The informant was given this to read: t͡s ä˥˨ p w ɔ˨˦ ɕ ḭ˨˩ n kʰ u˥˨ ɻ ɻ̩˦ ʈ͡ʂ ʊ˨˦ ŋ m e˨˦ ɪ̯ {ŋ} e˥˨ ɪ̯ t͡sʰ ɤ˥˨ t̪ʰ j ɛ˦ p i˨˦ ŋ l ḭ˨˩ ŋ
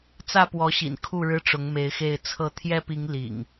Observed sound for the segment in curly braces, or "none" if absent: x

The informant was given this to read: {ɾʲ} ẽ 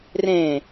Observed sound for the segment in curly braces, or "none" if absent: r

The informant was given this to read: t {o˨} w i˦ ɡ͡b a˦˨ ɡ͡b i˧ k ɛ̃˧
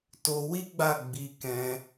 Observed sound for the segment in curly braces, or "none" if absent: o˧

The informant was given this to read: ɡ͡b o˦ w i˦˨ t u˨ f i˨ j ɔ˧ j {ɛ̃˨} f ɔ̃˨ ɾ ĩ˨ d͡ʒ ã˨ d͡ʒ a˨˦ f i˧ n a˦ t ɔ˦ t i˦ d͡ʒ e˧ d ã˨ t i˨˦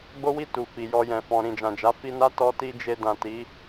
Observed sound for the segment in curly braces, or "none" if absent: ɛ̃˨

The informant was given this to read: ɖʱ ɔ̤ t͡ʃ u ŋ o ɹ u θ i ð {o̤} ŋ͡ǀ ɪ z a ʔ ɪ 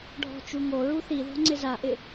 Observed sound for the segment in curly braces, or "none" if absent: ɔ̤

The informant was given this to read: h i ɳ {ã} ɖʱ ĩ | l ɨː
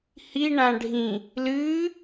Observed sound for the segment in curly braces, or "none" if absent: ã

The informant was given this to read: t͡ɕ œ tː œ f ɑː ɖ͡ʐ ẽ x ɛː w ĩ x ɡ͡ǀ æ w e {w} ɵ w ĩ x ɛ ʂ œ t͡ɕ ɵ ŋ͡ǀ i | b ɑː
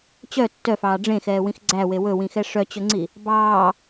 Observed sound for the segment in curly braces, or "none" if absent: w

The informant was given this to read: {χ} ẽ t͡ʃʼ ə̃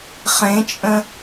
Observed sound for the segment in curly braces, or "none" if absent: χ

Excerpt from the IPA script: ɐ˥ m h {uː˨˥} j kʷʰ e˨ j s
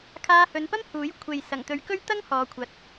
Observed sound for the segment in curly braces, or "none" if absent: uː˨˥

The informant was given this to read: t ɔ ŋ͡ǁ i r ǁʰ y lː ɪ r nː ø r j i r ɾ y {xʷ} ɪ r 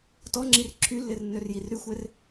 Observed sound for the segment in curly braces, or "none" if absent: xʷ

